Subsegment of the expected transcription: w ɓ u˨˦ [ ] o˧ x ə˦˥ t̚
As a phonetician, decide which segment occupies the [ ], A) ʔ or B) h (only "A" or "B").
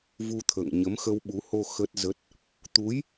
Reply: B